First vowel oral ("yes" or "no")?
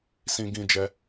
no